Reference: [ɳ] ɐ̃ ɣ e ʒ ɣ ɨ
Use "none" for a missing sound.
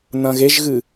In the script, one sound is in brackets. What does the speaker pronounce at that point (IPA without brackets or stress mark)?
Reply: n